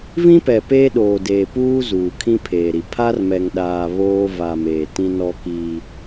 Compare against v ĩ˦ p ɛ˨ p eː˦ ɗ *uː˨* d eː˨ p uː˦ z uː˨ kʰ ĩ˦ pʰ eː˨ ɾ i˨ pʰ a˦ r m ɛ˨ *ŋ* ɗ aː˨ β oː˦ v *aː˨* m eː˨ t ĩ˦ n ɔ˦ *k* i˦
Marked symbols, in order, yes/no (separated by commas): no, yes, no, yes